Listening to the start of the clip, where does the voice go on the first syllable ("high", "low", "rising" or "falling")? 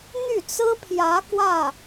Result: falling